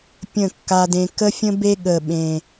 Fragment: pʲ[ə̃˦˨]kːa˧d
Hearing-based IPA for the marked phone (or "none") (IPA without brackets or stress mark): ə̃˦˨